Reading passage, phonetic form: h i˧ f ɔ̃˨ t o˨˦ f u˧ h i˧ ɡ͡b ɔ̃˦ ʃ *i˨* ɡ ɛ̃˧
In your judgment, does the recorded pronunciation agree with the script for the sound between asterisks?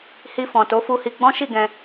no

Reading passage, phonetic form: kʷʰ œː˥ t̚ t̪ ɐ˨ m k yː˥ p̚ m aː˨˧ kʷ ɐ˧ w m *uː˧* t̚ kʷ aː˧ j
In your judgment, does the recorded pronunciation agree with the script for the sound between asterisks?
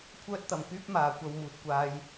no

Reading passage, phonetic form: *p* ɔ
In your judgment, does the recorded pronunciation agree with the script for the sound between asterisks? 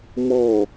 no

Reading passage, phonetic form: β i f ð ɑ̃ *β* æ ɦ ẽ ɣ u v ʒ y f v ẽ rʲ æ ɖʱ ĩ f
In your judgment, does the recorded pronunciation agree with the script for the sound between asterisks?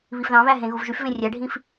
yes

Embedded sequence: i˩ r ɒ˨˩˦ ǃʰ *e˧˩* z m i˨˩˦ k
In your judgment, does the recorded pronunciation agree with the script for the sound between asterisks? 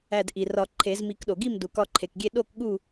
no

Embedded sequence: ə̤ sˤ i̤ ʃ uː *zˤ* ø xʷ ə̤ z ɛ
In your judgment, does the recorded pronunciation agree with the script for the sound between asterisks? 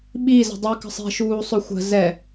no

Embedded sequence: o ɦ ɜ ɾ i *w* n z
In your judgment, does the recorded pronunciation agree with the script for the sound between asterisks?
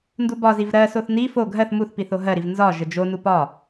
no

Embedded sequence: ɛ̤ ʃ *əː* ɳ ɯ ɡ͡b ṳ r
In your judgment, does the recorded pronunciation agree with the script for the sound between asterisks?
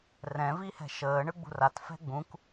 yes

